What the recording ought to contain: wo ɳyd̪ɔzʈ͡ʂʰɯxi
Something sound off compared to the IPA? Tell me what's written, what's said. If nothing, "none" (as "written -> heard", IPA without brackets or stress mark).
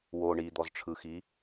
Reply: y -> i